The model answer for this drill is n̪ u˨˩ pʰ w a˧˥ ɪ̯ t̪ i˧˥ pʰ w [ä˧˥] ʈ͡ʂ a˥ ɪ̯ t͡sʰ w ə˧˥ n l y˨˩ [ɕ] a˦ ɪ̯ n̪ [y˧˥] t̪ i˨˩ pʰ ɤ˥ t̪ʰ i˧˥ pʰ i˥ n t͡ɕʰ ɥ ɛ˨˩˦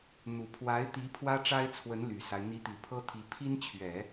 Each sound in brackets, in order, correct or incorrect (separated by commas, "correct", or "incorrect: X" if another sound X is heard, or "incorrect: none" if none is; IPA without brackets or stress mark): incorrect: ä˥, incorrect: s, incorrect: i˧˥